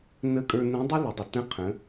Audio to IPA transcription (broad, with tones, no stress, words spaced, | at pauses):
nə˧˥kʼə˞˧nə̃˧˥dˤɪ˥ lɪ˩˧dˤə˩ tə̃˧˥qʰə̃˩˧